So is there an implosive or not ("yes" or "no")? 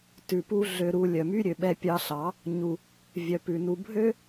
yes